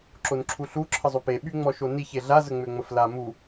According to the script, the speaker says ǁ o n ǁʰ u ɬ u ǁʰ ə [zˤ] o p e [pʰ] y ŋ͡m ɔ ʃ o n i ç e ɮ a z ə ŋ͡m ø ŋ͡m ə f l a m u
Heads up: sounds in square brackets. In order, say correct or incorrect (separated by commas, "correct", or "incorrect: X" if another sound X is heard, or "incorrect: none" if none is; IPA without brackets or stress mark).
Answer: correct, incorrect: ɓ